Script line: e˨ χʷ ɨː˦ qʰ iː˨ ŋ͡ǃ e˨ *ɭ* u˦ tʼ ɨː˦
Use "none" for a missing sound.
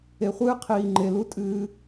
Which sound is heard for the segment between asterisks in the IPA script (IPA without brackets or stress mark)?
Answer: l